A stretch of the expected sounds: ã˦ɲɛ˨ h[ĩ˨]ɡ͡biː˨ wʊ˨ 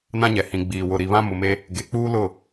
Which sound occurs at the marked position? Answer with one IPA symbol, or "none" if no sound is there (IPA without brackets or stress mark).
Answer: ĩ˨